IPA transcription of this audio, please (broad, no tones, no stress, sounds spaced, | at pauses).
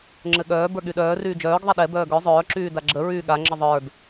ŋ͡ǁ ɘ ɠ œː b ə˞ ɠ y ɗ œː r yː d͡ʒ œː ɡ ðˤ ɛ ɗ ɛ b œː ɡ œ zˤ œː ǁ yː d a ɡ͡ǁ ə ɹ yː ɠ a ŋ͡ǁ ə ðˤ ə˞ d